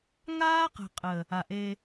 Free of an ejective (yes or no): no